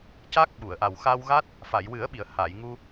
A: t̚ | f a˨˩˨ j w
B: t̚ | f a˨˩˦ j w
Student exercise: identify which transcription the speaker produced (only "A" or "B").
A